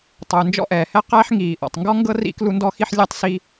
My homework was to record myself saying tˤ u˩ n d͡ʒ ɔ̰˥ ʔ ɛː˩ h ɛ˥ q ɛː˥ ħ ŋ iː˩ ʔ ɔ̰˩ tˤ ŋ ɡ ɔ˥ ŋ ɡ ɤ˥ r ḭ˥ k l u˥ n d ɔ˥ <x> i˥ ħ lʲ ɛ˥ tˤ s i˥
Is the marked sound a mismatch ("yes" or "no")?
no